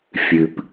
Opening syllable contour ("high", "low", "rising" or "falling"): low